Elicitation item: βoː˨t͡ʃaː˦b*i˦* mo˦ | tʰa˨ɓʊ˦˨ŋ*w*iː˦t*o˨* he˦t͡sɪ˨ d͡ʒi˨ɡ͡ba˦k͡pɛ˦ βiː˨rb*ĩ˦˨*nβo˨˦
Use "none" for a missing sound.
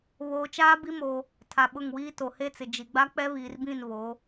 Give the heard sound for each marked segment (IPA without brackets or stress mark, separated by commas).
i˦, w, o˨, ĩ˦˨